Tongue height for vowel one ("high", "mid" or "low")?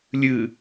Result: high